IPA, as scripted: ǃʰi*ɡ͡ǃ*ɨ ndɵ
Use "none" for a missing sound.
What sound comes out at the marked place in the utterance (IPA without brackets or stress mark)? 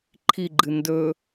ɡ͡ǃ